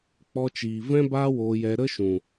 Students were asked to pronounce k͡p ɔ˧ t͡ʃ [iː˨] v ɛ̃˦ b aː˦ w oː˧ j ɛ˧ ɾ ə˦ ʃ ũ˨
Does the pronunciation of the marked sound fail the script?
no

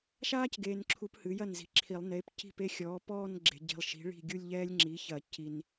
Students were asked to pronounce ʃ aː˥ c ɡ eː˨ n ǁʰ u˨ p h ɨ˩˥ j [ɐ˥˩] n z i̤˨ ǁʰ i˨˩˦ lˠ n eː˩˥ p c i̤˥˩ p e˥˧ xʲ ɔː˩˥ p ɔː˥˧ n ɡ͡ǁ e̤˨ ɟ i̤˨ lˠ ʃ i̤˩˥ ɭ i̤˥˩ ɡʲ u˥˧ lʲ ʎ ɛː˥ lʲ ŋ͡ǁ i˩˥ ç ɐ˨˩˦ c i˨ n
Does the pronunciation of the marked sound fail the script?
no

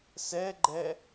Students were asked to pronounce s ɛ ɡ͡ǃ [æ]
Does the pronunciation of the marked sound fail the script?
yes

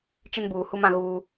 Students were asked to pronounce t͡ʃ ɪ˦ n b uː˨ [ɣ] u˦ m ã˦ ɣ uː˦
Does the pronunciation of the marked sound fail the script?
yes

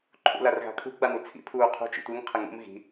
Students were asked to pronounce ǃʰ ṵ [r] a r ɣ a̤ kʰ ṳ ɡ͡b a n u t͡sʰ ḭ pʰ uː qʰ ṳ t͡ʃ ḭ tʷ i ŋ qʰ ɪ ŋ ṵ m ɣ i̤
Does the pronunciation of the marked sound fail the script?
yes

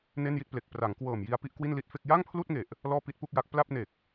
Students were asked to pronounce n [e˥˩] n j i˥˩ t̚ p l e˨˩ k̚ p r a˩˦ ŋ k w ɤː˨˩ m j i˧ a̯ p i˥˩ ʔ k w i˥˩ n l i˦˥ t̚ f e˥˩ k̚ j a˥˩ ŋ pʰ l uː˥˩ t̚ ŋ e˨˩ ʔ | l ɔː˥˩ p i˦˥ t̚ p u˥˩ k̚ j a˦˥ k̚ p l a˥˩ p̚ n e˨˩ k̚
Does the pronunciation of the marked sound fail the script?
no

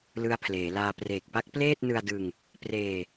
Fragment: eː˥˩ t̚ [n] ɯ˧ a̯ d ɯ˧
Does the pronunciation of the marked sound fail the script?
no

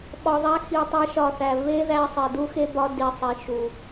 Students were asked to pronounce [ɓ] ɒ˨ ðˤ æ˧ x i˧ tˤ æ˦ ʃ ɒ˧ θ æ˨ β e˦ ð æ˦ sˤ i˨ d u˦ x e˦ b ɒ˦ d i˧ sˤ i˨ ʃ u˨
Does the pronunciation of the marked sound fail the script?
no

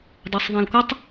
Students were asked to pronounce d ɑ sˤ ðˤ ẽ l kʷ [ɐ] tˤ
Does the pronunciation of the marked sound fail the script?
no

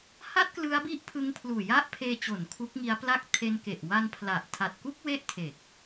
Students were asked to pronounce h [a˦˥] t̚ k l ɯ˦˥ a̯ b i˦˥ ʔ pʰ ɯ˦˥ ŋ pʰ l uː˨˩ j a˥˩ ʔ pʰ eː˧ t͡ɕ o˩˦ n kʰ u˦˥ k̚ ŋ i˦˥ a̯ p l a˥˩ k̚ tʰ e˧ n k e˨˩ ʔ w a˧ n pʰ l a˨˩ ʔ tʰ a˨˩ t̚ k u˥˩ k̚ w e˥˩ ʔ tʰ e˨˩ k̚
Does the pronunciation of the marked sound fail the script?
yes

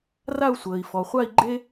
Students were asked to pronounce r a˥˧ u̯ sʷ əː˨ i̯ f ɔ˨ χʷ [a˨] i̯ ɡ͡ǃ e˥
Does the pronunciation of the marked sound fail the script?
yes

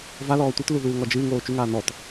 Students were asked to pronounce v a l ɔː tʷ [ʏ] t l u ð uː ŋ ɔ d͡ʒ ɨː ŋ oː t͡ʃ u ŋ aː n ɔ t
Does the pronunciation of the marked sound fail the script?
yes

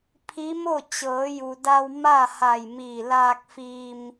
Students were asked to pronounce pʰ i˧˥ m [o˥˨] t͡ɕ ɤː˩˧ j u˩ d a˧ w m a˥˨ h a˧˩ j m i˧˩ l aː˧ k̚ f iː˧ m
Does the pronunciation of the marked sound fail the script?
no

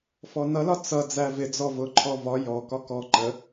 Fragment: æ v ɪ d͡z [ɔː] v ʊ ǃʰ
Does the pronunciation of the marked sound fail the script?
yes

